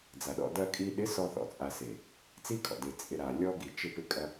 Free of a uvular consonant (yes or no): yes